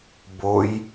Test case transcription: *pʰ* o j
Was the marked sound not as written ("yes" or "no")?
yes